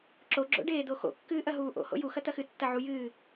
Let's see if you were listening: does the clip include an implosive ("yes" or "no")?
no